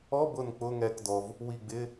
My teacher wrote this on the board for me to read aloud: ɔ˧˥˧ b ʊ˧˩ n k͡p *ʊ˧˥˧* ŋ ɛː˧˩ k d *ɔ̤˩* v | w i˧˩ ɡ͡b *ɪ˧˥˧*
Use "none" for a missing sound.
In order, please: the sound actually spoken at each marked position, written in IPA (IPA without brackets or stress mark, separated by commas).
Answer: ʊ˧˥˧, ɔ˩, ɪ˧˥˧